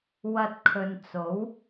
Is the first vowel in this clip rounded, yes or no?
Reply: no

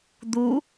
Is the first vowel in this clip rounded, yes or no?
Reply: yes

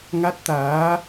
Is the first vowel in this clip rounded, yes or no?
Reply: no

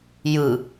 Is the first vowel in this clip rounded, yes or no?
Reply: no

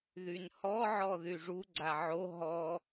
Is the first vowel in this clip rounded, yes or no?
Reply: yes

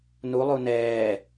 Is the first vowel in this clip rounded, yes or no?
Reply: yes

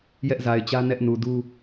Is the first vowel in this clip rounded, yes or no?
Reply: no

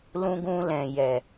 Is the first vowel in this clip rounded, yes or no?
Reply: yes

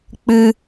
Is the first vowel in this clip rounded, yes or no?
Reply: no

